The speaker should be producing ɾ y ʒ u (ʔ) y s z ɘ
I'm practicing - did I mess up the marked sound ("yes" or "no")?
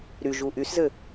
no